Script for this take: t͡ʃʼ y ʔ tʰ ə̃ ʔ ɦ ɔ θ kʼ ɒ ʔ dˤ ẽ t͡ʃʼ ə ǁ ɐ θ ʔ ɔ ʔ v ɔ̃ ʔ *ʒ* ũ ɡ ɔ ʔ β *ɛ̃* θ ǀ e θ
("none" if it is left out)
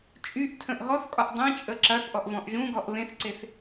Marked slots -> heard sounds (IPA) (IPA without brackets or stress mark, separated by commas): ʒ, ẽ